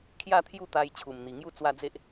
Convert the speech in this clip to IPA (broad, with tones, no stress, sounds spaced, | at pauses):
kʰ j a˥˧ t̪ʰ j u˥˧ t̪ a˧ j t͡ɕʰ u˨˩ m n̪ i˨˩ ŋ j u˥˧ t͡s w a˥˧ d͡z e˦ ʔ